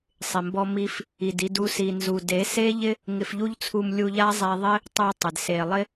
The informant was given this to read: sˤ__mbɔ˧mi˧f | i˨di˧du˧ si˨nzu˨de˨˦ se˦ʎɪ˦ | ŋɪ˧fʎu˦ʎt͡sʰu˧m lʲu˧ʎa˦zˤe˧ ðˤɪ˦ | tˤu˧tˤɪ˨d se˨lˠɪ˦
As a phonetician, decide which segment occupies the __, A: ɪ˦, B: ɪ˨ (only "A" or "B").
B